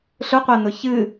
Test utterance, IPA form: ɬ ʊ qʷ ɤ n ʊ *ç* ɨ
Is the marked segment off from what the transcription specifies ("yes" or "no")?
no